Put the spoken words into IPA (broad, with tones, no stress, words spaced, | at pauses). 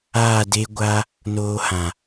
aː˦˨de˦ɡʷa˦ | noː˧hã˨